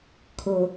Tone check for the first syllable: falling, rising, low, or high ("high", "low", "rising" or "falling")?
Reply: low